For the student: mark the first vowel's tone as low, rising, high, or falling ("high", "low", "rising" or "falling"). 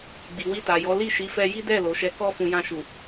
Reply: low